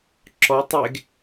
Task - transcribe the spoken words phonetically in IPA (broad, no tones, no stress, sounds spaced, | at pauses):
ǁ ɔ tˤ e ɡ